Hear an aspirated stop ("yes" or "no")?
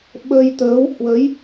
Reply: no